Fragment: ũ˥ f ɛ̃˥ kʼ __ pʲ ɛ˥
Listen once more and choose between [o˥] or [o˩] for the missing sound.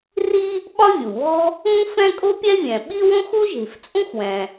o˥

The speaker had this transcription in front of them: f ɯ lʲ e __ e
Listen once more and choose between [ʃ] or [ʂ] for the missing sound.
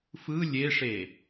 ʂ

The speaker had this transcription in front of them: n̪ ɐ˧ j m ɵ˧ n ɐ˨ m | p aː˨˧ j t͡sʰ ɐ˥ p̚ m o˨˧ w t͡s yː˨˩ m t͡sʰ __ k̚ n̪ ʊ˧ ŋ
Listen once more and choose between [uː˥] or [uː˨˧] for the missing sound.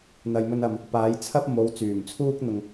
uː˥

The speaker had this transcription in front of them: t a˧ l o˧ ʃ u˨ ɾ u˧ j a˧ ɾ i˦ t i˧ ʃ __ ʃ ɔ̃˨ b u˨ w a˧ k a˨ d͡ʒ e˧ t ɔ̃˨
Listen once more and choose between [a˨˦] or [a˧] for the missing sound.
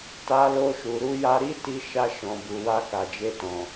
a˧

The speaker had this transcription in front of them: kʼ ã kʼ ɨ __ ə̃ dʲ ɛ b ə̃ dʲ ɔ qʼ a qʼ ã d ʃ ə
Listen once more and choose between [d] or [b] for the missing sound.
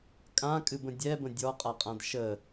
b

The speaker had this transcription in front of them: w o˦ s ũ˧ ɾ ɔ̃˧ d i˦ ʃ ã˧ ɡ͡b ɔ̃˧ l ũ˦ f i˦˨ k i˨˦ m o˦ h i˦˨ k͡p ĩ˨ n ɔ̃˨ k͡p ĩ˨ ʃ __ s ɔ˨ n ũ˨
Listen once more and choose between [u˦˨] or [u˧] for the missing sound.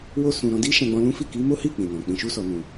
u˧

